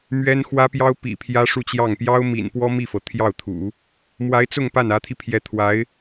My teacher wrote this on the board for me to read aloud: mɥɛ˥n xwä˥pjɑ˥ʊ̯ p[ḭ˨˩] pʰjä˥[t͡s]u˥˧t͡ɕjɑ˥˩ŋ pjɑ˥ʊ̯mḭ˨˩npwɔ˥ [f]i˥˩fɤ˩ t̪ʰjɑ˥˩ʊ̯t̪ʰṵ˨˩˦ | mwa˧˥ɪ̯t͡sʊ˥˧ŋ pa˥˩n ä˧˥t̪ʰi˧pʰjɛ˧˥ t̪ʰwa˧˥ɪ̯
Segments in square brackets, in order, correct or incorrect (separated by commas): correct, incorrect, incorrect